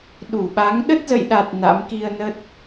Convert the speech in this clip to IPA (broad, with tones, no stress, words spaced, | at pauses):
ɗu˧˩ɓa˨˦ŋ ɗə˦˥t̚zə̰˧˨jɗa˨˩t̚ na̰˧˥m ki˧ə̯nə˦˥t̚